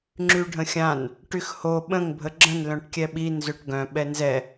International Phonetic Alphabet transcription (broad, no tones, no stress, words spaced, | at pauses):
ŋ͡ǁyɖʱə̃xʲãn | ʈyxho ɓə̃ŋ bʱəɡ͡ǁə̃n lœ̃ʈkʲɛɓi nzøʈɡœ̃ ɓɛnzɛ